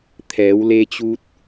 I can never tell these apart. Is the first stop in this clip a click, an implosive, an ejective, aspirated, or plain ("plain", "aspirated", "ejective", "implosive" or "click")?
aspirated